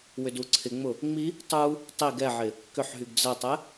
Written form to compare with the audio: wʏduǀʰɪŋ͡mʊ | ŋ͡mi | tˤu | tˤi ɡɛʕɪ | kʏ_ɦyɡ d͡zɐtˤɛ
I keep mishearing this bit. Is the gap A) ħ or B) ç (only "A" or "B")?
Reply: A